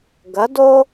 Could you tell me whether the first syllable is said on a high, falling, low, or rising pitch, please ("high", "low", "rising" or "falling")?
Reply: rising